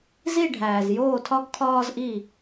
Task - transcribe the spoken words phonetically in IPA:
zi˦˨ɖʱæː˩zjoː˦˨tʰɒ˦ɡ kʰɒː˦zʔi˦˨

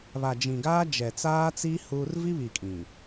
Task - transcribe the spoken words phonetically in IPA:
βa˨d͡ʒĩ˨ɡaː˦ d͡ʒɛ˨t͡saː˦t͡si˦ huː˦r vi˦βi˨ kʼĩ˨

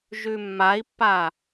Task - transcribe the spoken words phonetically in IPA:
ʒʉmːai̯pːa

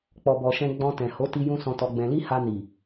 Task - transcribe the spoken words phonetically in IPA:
k͡pɔ˨bɔ˨ʃɛ̃˧ ɡ͡bɔ̃˧ tɛ̃˨ ho˨˦ti˧ jũ˦sɔ̃˧tɔ˧ɡ͡bɛ̃˧ li˦ ha˧ni˨

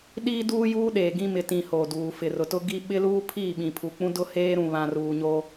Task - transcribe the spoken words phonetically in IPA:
ɗiː˦duː˦juː˦ɗeː˨ ɡĩ˦ mɪ˨tĩ˨ hoː˨duː˨ fɪ˨rʊ˨tʊ˦ɡi˦ ɓɪ˦luː˦pʰi˦˨ɓĩ˨ pʰu˨k͡pũ˦dʊ˦ heː˦ɾũ˨ βã˨ruː˨ɲo˦

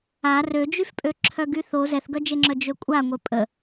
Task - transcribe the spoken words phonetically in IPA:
a rød͡ʒyfpʼø ǁʰœɡyθo zɛθɡœd͡ʒeŋ͡ǁœ d͡ʒøkʷʼaŋʷe pʼə

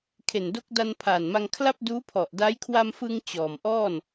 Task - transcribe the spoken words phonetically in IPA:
kʰe˨˩ndo˦˥k̚da˧n pʰaː˨˩nma˧ŋkʰla˥˩p̚ duː˦˥pʰɔ˨˩ʔda˦˥j kʰwa˧mfɯ˧ŋ t͡ɕɔː˨˩mʔɔː˥˩n

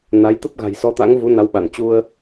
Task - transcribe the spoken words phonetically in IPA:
na˨˦j t̪ə˦˥p̚ɣa̤˨˩j sɔ˨˦t̪a̰˧˥ŋvu˨˦ na˨˦wɓa˧˩n t͡ɕu˧ə̯

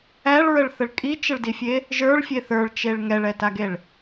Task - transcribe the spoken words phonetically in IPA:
æɭɹəɭθəɭ kʼit͡ʃəɭdifʲe | ʒə˞ɭfʲe θə˞ɭt͡ʃeɭ ŋɛɭɛtaɡeɭ

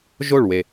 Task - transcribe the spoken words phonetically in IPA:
ʒo˦˨ɭwe˨

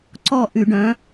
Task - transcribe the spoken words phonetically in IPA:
ǀɔ˦˨ ʔy˧˩˧ɖœ̃˨˥

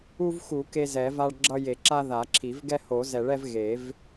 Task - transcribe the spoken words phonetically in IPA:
u˦vxu˨˩˦ ke˦zɛ˨˩˦va˦ɭɡ͡ǁʌ˦ je˨˩˦ǁa˦ ða˨˩˦ǁʰi˨˩˦v ɡɛ˦ho˨˩˦zɛ˨˩˦ɭɛ˦v ɣe˨˩˦v

